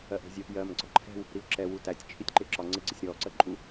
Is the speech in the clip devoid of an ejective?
no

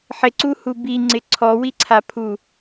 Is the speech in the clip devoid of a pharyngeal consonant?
no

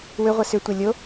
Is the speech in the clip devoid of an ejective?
yes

